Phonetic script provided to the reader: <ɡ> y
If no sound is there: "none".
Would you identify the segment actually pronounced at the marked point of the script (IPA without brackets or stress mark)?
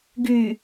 ɡ